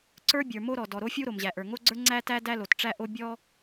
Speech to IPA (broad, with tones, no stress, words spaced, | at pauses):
ǀə˞˥ bʲə˞˩ mo˥ ɾɔ˩ dɔ˩ɾo˥fʲu˥ ɾo˩mʑæ˩ʔə˞˩ ŋo˥ɡ͡ǀə˞˥ ŋ͡ǀæ˥tæ˥ dæ˥lo˩tʈ͡ʂæ˥ʔo˥ bʲɔ˥